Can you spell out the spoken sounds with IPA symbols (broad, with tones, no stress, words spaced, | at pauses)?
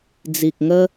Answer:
d͡zi˨k̚ ŋə˧